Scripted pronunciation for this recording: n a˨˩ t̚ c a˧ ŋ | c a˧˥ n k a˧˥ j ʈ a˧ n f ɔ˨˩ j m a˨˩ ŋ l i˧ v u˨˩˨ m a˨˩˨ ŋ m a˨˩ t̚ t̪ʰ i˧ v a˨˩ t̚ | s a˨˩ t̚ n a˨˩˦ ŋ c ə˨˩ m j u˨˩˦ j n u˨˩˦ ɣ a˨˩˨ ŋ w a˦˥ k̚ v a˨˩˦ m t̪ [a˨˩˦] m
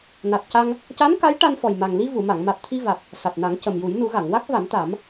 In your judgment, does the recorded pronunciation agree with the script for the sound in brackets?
yes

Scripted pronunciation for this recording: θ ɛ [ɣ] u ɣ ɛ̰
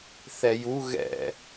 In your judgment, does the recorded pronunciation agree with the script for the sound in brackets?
no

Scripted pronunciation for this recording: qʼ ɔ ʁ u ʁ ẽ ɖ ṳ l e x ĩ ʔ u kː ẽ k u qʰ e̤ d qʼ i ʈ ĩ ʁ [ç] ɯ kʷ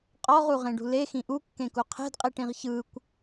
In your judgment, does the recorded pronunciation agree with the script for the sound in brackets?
yes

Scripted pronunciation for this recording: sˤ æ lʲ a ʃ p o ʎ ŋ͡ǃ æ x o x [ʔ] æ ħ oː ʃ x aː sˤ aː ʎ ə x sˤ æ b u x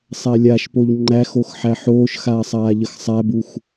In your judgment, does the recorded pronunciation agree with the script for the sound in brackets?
no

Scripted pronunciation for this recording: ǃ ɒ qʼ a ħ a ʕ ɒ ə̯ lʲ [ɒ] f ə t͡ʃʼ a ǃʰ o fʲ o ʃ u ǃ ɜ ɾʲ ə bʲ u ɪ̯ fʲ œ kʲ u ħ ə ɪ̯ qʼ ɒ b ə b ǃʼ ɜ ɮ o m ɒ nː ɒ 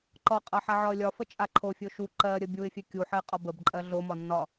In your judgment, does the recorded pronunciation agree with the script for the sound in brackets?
yes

